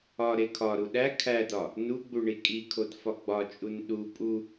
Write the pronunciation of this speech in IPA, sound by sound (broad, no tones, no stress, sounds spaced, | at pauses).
ɒ ɾ e kʰ ɒ ɾ u ɗ æ kʰ æ d ɒ | n u ɡ͡b u ɳ i kʼ i kʰ o d f ɒ ɡ͡b ɒ t͡ʃʼ u n ɗ u pʼ u